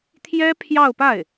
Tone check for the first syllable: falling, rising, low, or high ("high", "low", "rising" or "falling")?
high